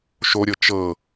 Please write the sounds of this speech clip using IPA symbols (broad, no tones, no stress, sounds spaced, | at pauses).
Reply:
ʃ o ɾʲ ɤ t͡ʃ ɤ